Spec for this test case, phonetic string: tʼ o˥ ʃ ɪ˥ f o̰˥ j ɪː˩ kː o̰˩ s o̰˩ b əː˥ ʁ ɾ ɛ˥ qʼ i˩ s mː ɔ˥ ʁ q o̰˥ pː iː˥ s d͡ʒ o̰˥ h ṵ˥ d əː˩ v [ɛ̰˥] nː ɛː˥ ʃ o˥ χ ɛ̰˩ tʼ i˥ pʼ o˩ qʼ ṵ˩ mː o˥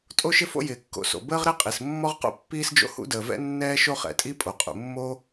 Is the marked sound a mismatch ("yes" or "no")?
no